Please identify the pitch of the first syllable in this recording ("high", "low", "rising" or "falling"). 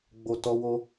low